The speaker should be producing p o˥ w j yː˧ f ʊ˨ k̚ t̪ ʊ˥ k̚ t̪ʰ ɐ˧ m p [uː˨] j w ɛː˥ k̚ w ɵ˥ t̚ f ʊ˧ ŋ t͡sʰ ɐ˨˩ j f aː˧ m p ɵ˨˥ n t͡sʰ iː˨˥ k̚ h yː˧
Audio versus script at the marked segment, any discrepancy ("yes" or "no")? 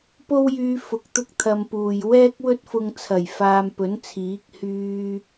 no